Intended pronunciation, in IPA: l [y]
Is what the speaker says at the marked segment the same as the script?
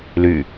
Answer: yes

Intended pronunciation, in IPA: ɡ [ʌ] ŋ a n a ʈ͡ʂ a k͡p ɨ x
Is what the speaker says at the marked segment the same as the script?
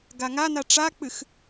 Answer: no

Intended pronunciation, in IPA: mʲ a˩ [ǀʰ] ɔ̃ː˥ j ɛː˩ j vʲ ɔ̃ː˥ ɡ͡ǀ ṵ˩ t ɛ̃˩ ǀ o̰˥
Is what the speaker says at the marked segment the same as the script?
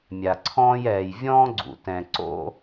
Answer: yes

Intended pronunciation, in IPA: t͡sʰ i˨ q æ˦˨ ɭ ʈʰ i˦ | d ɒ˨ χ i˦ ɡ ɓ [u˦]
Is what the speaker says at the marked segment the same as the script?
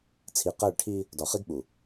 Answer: no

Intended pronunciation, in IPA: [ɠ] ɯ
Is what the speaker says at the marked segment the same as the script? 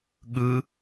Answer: yes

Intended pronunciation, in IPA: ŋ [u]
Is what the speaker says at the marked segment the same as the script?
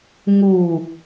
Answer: yes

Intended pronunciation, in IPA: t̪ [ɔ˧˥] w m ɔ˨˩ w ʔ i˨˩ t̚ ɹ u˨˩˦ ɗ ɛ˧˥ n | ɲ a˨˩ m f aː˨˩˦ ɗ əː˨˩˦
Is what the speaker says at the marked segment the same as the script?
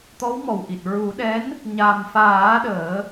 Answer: yes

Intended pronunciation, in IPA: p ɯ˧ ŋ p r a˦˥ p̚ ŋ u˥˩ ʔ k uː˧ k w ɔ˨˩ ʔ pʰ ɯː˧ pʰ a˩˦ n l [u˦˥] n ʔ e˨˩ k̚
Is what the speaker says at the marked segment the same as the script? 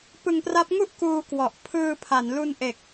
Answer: no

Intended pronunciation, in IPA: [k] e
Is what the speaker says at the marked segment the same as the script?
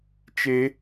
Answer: no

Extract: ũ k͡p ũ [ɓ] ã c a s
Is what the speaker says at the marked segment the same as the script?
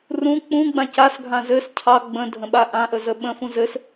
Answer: no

